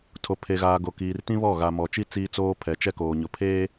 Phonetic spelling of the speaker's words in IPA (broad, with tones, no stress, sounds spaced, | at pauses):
tʰ o˨ pʰ e˨ ɣ aː˨ ɡ o˨ k iː˨ r t ĩ˦ β ɔ˦˨ ɣ a˨ m ɔ˨ t͡ʃ i˦ t͡s iː˦ t͡s oː˦ pʰ ɛ˨ t͡ʃ ɛ˦ k oː˨ ɲ ʊ˨ pʰ eː˦